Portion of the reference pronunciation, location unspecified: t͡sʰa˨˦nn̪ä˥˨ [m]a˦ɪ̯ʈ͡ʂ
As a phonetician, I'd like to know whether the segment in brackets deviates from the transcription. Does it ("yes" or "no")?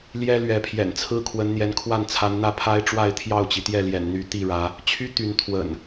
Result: yes